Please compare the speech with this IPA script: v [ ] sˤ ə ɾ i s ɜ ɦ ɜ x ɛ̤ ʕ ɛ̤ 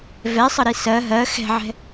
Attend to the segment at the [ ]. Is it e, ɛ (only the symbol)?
ɛ